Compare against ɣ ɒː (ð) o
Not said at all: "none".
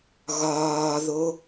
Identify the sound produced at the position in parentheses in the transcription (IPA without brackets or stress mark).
ð